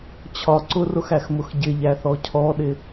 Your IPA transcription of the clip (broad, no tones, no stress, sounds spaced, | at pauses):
t͡ɕʰ ɒ ǀ ʊ r ʊ x æ x m ʊ x ɟ ɪ ʎ æ θ ɔ cʰ ɔ ɗ ɪ